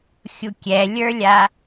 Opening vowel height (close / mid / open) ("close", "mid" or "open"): close